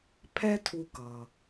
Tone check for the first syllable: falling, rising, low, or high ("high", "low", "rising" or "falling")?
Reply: high